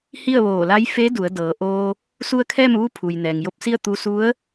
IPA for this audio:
h i˥˨ ə̯ ʋ oː˧˩ l a˧˥ j f e˧˥ d u˩˧ ə̯ d ɤː˩˧ ʔ oː˧ | s u˧ ə̯ kʰ ɛː˥˨ m ʋ u˧˥ pʰ u˩ j n ɛː˩ ŋ j o˧ p̚ s i˥˨ ə̯ t̪ u˧ s u˧˥ ə̯

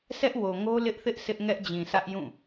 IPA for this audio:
sʰ ɛ˦ ʔ w o˨ ŋ o˦ l ɪ˦ ʔ θ ɪ˦ ʔ sʰ ɪ˦ ʔ ŋ ɛ˦ ʔ d͡ʑ ĩ˨ sʰ ä˦ ʔ j ũ˦˨

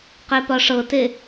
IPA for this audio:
q e p ɒ ʂ ɤ t e

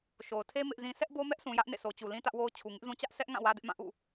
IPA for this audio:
ʃ o˨ ʊ̯ tʰ e˦ m ɪ˦ ʔ z ĩ˦ s ɛ˦ ʔ b o˦ m ɛ˦ ʔ s ũ˨ j ä˦ ʔ n ḛ˦˨ s o˨ t͡ɕ u˨ l ĩ˦ t ä˦ ʔ w o˦ ʊ̯ t͡ɕʰ u˨ ŋ ɪ˦ ʔ z ũ˦ t͡ɕ ä˦ ʔ s ɛ˦ ʔ ŋ ã˦˨ w ä˦ d ɪ˦ ʔ m ã˦˨ ʔ ṵ˦˨

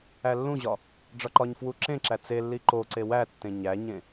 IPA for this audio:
æ lː ũ ʑ ɒ | ɖ͡ʐ ɒ ǃ ɒ ɲ f w u ǁ ẽ ǁ æ t͡s e lː i ǃ o ǀ e w æ tː ẽ ɲ æ ɲ ẽ

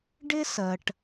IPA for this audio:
ɖ ɪ˥ s ɜ˩ ʈ

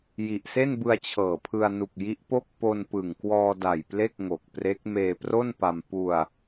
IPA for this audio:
j i˨˩ ʔ s e˥˩ n b ɯ˧ a̯ t͡ɕʰ ɤː˨˩ pʰ ɯ˧ a̯ n u˨˩ k̚ j i˦˥ ʔ p o˥˩ k̚ p o˧ n p ɯ˨˩ ŋ k w ɔː˧ d a˨˩ j p l e˥˩ k̚ ŋ o˨˩ k̚ p r e˦˥ k̚ m eː˧ p r o˥˩ n p a˧ m p u˧ a̯

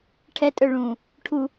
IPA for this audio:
ʈʰ ɛ tʼ œ ɭ ũː | ʈʰ u

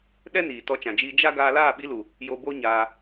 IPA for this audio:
ɗ ɛ˦ n iː˨ t ɔ˧ t͡ʃ ã˨ d͡ʒ iː˧ d͡ʒ a˦ ɡ aː˧ l aː˦˨ ɓ i˧ l u˨ | j o˧ b o˦ ɲ aː˧

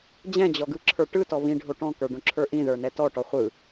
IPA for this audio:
d͡ʑ ɛ̃ d͡ʑ ɔ ɡ ɯ ǁʰ ə˞ ʈ ɯ t ɔ β ĩ ɖʱ o ʈ ɔ̃ k ə˞ ɖ õ ǁʰ ə˞ ʔ ĩ ð ə˞ n ɛ t ɔ ʈ ɔ χʷ ɯ

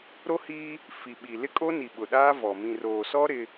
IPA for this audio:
ɾ o˦ h iː˦ | f i˨ ɓ i˨ l ɪ˦ kʼ o˦ n i˨ ɓ ʊ˨ ɗ aː˦ v ɔ˨ m ĩ˨ r oː˨ s ɔ˦ ɾ ɪ˦

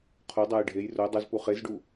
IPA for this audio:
qʰ o dˤ a j ɖʱ e j r o dˤ ɛ z p u χ e z ɖ u

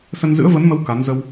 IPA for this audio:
s ə˧ n z ɨ̰˧˥ ə̯ v ə˨˦ n m ə˨˦ w k a˨˦ n z ə˧ w

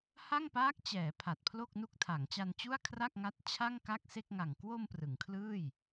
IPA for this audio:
h a˥˩ ŋ p aː˦˥ k̚ t͡ɕ ɛː˩˦ pʰ a˨˩ t̚ pʰ l o˥˩ k̚ n u˦˥ k̚ tʰ a˩˦ ŋ t͡ɕ a˧ n t͡ɕ u˥˩ a̯ kʰ r a˥˩ k̚ ŋ a˦˥ t̚ t͡ɕʰ a˥˩ ŋ k a˥˩ k̚ s e˥˩ k̚ ŋ a˨˩ ŋ k w o˧ m p r ɯ˩˦ ŋ kʰ l ɯː˥˩ j

